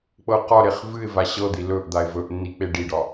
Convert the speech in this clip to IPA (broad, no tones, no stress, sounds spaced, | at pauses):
k͡p ɤ q ɒ ɾ e χ v ɨ ɪ̯ v a ɕ ɤ d̪ i l ɵ ʔ d̪ a ɪ̯ v ɵ ʔ nː i k͡p e ɖ i ɖ ɒ